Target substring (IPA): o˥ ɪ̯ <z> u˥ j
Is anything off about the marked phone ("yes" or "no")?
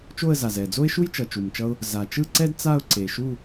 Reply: yes